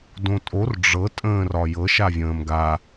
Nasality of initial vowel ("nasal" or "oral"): nasal